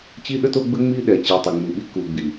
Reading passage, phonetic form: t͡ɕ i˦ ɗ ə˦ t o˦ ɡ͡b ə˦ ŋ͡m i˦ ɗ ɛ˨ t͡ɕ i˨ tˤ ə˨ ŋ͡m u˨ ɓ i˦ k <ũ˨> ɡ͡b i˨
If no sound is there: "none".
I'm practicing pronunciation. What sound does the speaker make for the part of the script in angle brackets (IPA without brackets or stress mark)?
u˨